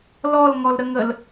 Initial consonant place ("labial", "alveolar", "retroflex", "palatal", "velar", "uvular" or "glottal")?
alveolar